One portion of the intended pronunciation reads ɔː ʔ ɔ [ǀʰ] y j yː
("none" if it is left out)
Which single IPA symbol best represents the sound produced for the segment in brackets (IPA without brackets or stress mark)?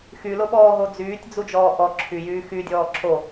ǁʰ